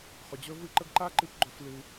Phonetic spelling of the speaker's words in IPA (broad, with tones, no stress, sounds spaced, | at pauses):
χ ɵ˩ d͡ʑ ɵ˥ v ɨ˦ ǃ ə˦ ɡ ǃ a˥ ǃ ɨ˦ p ɡ͡ǃ ɵ˨ f l ɨ˨